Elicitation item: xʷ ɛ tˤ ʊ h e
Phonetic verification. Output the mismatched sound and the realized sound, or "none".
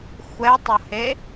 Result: none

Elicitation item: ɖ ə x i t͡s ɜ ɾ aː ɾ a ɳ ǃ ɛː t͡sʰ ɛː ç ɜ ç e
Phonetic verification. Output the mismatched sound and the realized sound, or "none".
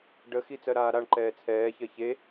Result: none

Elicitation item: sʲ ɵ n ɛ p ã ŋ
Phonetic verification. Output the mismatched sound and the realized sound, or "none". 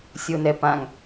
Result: ɵ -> o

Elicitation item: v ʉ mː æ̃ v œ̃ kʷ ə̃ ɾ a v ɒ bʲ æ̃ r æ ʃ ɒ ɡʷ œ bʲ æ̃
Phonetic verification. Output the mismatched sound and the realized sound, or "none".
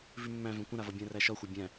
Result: ɡʷ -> xʷ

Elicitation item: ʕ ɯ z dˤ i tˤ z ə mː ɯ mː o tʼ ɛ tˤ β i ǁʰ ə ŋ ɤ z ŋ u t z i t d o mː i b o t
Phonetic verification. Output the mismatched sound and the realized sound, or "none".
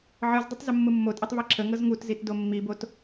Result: none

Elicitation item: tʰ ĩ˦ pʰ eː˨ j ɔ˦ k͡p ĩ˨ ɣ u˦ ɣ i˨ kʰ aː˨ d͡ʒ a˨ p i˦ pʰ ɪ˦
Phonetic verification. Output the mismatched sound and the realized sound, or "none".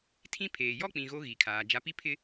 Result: u˦ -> o˦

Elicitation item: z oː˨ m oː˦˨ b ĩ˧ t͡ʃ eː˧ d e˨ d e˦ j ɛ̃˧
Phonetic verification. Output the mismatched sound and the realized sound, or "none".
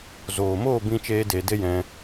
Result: none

